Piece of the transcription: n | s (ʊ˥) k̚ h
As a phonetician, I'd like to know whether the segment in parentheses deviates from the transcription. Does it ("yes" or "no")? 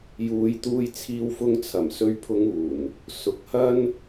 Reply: yes